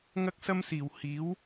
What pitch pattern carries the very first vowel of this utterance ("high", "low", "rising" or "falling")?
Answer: high